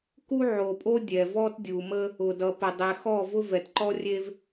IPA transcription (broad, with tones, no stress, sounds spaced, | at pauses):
k u˦ ʕ o˨ pʼ o˦ dʲ ɛ˨ v ɔ˦ t dʲ u˨ m ə˦ | ʊ˨ d ʌ˨ p ə˨ dˤ ɛ˨ x ɔ˦˨ v ʊ˦ v ɛ˨ t ǃ ɔ˦ rʲ e˦ v